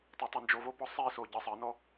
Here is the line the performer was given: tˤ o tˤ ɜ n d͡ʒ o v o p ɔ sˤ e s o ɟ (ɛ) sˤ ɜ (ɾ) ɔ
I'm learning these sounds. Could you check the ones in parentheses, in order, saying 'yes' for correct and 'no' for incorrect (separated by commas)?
no, no